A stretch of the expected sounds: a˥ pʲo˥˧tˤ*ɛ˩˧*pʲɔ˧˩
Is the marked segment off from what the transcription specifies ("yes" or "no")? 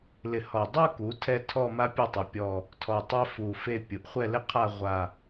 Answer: yes